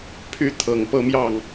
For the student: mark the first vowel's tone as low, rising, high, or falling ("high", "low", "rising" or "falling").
high